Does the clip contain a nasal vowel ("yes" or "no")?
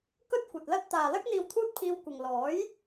no